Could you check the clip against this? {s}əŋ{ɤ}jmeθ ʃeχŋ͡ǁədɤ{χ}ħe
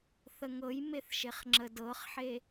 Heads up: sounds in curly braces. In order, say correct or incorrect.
incorrect, correct, correct

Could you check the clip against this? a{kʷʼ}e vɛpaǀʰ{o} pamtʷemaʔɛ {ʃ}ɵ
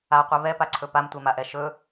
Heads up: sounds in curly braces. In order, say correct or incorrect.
incorrect, incorrect, correct

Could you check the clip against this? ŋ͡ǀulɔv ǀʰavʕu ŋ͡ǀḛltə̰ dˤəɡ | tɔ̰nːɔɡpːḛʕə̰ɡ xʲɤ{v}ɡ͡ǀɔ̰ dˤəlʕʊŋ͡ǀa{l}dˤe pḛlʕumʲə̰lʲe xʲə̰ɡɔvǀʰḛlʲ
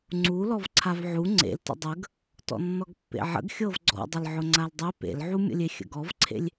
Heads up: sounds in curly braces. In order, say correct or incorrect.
correct, correct

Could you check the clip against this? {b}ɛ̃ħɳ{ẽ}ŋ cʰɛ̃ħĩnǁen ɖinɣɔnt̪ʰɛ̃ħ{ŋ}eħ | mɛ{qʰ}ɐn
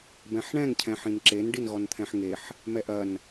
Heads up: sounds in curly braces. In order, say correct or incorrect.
correct, incorrect, correct, incorrect

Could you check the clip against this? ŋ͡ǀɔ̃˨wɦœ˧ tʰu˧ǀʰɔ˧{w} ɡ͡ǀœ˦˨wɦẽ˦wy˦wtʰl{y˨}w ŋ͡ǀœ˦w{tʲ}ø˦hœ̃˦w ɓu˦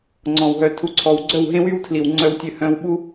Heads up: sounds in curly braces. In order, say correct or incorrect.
correct, incorrect, correct

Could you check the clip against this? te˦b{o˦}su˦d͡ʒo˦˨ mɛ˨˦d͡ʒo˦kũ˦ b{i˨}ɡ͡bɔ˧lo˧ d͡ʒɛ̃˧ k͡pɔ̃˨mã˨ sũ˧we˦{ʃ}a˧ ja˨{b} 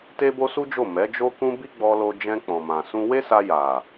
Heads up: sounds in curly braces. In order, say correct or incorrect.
correct, incorrect, incorrect, incorrect

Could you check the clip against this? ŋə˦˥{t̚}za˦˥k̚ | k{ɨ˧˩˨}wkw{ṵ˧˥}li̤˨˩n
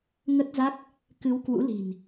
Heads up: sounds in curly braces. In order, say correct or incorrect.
correct, incorrect, correct

